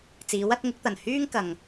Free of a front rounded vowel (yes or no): no